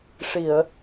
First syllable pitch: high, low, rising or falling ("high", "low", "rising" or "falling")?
low